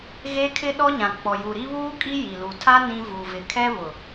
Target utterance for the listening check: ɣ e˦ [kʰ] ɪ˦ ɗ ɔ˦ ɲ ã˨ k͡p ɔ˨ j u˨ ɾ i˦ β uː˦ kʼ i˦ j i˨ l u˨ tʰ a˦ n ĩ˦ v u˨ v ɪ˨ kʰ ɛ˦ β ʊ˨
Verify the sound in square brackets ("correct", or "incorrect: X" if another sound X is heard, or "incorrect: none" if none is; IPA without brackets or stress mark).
correct